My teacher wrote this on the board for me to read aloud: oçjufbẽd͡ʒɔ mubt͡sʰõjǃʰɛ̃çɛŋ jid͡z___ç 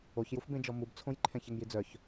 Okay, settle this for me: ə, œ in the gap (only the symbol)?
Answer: œ